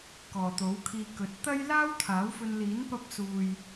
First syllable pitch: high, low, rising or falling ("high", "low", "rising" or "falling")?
low